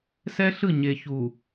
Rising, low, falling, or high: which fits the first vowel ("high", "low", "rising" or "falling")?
high